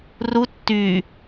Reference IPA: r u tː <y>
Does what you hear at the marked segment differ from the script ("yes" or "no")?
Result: no